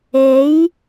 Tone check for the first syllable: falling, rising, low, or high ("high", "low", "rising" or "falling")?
rising